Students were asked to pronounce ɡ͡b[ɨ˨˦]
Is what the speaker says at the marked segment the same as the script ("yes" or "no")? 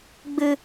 no